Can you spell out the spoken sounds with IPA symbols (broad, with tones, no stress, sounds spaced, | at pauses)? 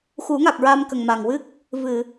x u˨˩˦ ŋ a˨˩ k̚ ɹ a˧ m k ə˨˩ ŋ m a˨˩ ŋ w ɨ˦˥ k̚ | v ɨ˨˩˨